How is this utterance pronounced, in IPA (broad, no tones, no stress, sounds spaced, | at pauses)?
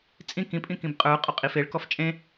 t͡sʼ ĩ k ĩ pʼ ĩ k ĩ b qʼ ə˞ qʼ ɔ qʼ i f e ɭ k ɔ f t͡ʃʼ ẽ